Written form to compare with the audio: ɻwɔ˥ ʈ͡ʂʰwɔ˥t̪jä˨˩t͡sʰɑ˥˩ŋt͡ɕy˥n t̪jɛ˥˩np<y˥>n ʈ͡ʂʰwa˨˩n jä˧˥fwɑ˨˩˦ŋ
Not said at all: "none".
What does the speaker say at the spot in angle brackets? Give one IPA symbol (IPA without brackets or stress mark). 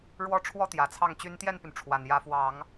y˩